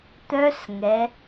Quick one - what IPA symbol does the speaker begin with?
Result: t̪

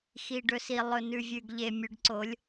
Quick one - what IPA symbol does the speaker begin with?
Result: x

